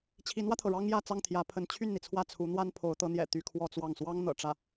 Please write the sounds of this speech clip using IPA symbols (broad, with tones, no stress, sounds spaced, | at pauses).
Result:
t͡ɕʰ i˧˥ n w ä˧ t̪ʰ ɤ˩ ɻ ɑ˥ ŋ j ä˥˧ t͡s ɑ˥˩ ŋ t̪ʰ j ä˧˥ pʰ ə˧˥ n t͡ɕʰ y˥˩ n n̪ i˩ t͡sʰ w ä˥˩ t͡sʰ u˧˥ n̪ w a˥ n pʰ o˧˥ ʊ̯ t̪ ɤ˧˥ n̪ j ɛ̰˨˩ t̪ y˥˧ kʰ w ɔ˥˧ t͡s w ɑ˥˩ ŋ s w ɑ˥ ŋ n̪ ɤ̰˨˩ ʈ͡ʂ ä˥˩